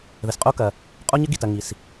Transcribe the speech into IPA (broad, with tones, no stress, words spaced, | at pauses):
ðɘ˩sqʼo˧ kɐ˩ | qʼo˧ɲɘ˧ɡi˩tɐ˩ ŋi˩s